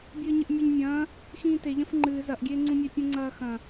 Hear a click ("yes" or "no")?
yes